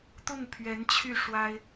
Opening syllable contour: falling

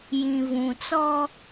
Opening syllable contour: low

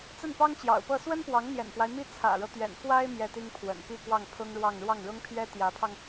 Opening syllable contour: falling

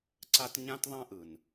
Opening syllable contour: high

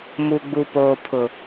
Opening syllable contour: low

